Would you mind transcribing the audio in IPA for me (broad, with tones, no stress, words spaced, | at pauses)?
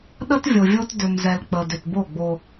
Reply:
ɗə˦tvʲo˨vʲo˦t dʏ˨mzɛ˨lk͡pə˨ dʏ˨tbo˦˨ɡ͡bo˦